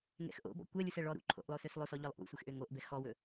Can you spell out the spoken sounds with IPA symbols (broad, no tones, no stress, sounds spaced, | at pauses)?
ŋ ɛ̰ x ʔ o̰ b ɔ̰ kʷ ɛ lʲ u s ɛ ɭ ɔ ɾ ṵ ǃʰ o̰ ʔ lˠ o s ø s lˠ o s ɔ ʎ ɔ lˠ ʔ ṵ sʷ ɛ x ʔ ø ŋ o ʔ b ɛ x ɔ w ɵ